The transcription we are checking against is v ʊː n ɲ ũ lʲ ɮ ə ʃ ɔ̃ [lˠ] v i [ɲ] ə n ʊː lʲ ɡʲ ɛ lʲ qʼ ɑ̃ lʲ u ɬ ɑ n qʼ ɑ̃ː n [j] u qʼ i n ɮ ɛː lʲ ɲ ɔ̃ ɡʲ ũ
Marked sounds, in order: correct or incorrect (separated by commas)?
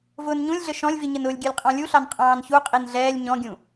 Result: incorrect, correct, incorrect